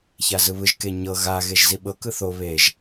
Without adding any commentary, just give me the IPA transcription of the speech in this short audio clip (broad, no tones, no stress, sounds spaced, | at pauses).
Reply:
ç a z ɯ β ɯ ʒ k e ɲ ɤ ɣ a ɣ e ʒ z i ɓ ɤ k ɯ θ o β e ʒ